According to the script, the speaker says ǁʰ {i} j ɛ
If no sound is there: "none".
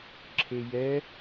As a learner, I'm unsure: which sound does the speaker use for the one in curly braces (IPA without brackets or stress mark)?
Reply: e